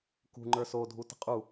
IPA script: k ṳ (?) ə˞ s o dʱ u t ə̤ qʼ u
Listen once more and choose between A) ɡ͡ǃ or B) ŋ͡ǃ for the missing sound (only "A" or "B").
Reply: B